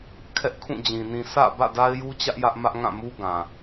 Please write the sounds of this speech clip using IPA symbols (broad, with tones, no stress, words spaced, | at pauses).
kʰɛ˦ʔkʰũ˦˨d͡ʑĩ˨ nĩ˨sä̰˦˨ bä̰˦˨da˦ɪ̯ju˦t͡ɕä˦ʔ jä˦ʔmä˦ʔŋã˦˨ mu˦ɡã˨